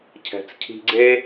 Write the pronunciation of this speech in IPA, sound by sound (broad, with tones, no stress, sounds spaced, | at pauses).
cʰ ɛ̤˨ t͡s cʰ i̤˧ ɡ͡ǀ e˦